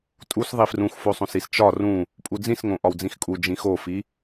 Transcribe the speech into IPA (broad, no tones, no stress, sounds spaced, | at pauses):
tʼ u s ðˤ i f r ũ x f o sˤ õ s i s t͡ʃ ɒ r ũ | pʼ u d͡z ĩ s ŋ õ ʔ ɒ w d͡z ĩ x kʼ u d͡ʒ ĩ x o f i